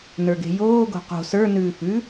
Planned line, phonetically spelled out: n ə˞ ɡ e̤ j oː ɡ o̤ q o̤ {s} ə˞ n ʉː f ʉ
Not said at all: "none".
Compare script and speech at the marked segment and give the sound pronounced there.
s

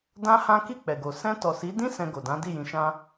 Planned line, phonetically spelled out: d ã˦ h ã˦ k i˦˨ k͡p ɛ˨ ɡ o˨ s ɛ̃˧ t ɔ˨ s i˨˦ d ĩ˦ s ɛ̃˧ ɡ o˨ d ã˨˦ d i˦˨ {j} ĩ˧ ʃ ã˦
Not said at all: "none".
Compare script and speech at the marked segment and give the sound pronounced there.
j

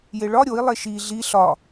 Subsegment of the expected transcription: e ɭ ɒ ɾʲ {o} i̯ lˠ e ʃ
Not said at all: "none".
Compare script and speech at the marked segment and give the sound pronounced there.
o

